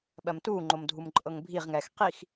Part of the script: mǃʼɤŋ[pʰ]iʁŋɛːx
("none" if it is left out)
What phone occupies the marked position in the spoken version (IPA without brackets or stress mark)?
bʱ